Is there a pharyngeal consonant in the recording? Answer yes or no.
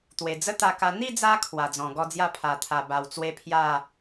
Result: no